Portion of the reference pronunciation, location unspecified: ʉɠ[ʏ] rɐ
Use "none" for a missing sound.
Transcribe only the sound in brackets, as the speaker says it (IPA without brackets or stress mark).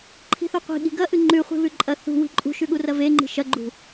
u